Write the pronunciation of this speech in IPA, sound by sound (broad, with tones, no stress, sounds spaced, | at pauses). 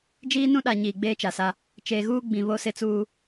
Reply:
d͡ʒ iː˦ n ũ˦ ɗ a˨ ɲ iː˨ ɡ͡b eː˦ t͡ʃ a˨ s a˦ | t͡ʃ eː˨ ɣ uː˦ ɡ͡b ĩ˨ β o˦ s ɪ˦ t͡s uː˦